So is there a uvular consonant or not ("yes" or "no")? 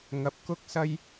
no